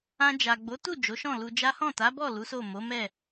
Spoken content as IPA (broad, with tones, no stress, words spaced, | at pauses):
ã˧ d͡ʒa˨ɡ͡bo˨˦tu˦˨ d͡ʒo˨˦ʃɔ̃˦˨lu˧d͡ʒa˦ hɔ̃˦˨ta˨˦bɔ˦˨ lu˨˦so˦˨ mo˨˦mɛ˦˨